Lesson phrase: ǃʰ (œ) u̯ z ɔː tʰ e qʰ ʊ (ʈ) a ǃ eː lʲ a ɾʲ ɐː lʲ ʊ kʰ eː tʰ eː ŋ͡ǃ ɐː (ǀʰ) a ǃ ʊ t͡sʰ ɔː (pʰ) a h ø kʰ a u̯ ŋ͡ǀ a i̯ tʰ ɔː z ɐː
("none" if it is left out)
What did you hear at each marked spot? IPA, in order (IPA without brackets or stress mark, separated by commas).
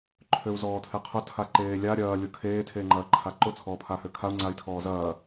ø, tʰ, ǃʰ, pʰ